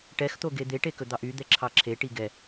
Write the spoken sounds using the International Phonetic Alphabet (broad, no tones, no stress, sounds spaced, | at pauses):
ʈ ɛ x t̪ o ɡ e d̪ e ʈ e k ɵ d̪ ɑ ʔ y d̪ ɛ ǁʰ ɑ ǁʰ e ʈ i ɡ ɛ